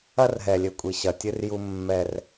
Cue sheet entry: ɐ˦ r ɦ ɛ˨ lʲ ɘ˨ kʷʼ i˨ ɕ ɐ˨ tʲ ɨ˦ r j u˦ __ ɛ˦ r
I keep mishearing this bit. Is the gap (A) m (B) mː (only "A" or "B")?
B